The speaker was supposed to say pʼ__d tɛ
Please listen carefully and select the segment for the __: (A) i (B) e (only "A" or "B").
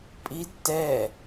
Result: A